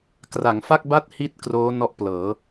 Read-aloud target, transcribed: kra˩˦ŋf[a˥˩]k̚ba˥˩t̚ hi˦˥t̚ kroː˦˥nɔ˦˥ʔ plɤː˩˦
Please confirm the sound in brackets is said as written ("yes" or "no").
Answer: yes